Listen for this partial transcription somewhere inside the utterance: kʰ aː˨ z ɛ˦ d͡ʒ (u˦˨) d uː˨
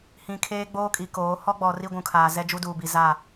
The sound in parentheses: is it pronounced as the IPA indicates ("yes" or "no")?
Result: no